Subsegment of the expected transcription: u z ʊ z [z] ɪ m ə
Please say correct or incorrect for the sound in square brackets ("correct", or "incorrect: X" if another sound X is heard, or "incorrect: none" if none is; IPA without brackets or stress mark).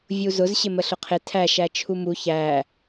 incorrect: ɕ